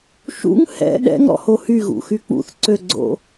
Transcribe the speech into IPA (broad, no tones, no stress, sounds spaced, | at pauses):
ʃ ṵ ŋ h ɛ̰ ɗ ɛ̰ ŋ ɾ ɔ̰ h o h y ɣ ṵ x y k͡p ṵ θ ǀ ø ɡ͡ǀ o̰